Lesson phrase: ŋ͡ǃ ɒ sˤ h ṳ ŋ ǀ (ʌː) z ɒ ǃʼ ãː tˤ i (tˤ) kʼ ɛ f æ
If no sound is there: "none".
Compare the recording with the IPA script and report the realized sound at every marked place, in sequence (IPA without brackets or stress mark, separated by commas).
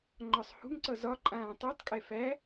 ʌ, tˤ